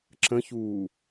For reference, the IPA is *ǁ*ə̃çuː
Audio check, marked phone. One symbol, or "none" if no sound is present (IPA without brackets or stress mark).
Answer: ǁ